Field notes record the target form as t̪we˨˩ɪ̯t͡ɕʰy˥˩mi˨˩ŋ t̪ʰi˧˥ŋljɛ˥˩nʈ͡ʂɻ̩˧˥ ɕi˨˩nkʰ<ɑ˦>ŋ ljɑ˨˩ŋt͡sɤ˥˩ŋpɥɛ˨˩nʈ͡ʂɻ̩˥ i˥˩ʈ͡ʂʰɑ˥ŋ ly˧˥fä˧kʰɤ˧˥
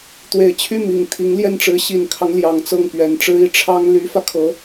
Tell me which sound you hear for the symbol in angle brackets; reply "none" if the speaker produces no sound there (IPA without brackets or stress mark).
ɑ˦